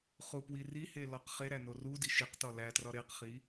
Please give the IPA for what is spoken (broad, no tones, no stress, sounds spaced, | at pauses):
χ u p w i r i h e l ɒ q χ e ɾ æ n o r u d i ʃ i q t ɒ l æ t r ɒ ɾ e q χ i